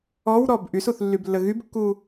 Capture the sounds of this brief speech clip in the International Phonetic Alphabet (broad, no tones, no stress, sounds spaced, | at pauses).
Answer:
ɔ w ɾ ɔ b ʔ y s u θ lː y b lː ə ɣ y b kː u